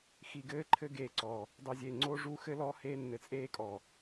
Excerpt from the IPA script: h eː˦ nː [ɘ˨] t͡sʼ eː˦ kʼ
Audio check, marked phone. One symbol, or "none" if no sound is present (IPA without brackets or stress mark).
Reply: ɘ˨